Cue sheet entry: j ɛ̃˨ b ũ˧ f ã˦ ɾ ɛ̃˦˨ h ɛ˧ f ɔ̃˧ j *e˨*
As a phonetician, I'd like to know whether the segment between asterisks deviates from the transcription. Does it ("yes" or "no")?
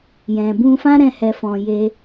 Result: yes